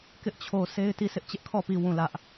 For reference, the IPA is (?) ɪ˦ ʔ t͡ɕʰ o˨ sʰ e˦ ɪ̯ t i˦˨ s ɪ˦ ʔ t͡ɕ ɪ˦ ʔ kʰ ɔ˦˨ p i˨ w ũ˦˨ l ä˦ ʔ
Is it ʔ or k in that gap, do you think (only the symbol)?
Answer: k